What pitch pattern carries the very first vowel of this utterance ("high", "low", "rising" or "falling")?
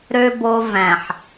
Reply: low